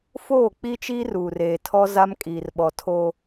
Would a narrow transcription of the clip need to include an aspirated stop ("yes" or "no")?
yes